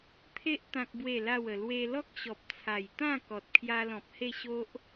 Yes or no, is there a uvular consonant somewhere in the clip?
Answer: no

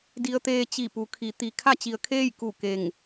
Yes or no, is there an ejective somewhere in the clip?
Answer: no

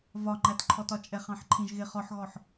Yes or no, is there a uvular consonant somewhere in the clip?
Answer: yes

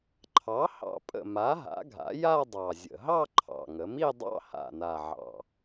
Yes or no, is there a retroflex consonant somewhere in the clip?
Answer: no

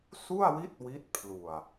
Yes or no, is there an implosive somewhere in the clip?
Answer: no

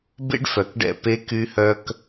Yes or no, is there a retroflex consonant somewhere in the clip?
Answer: yes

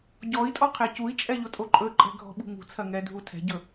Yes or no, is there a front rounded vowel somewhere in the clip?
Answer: no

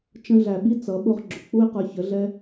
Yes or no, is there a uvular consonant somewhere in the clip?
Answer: yes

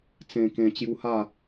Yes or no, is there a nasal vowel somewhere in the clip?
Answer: yes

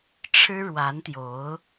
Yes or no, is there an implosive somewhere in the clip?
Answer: no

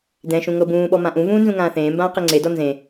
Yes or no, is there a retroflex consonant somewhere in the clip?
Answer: no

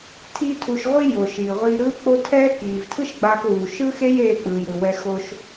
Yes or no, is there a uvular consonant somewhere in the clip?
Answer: yes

